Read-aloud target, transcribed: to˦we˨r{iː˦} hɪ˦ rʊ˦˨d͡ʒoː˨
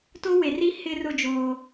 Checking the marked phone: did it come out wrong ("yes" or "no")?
yes